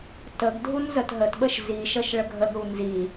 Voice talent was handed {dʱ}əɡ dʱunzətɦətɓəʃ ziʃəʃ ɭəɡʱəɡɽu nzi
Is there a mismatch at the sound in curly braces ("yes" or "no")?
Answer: yes